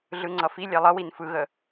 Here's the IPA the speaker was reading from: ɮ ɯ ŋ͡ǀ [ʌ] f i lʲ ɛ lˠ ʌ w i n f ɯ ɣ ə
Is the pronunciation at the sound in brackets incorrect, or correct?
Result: correct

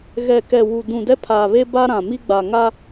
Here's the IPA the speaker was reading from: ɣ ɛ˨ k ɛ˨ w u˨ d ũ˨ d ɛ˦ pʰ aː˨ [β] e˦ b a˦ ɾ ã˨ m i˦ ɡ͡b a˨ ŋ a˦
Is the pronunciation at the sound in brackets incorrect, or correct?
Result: correct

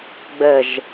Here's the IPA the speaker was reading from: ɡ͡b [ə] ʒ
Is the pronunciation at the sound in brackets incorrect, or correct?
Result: correct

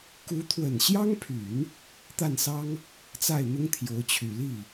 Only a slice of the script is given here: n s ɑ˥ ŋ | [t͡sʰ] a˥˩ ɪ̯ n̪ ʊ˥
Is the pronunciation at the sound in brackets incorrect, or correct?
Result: incorrect: t͡s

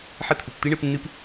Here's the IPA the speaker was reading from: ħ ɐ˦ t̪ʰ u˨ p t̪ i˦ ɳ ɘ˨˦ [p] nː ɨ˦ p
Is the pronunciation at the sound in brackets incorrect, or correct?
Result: correct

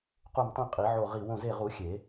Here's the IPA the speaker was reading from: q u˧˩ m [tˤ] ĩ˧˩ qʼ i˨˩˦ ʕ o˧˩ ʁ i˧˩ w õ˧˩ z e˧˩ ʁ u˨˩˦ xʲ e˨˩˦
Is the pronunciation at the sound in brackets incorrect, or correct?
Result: correct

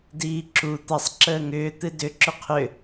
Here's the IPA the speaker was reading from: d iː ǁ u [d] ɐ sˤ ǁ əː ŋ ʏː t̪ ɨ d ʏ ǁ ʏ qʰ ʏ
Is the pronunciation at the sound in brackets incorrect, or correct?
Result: incorrect: t̪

